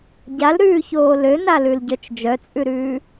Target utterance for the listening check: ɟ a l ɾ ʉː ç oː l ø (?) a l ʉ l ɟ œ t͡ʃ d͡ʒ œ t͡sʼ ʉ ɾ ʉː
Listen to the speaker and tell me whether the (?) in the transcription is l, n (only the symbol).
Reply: n